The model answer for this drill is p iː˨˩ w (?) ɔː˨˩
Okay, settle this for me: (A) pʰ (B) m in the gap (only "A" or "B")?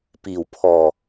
A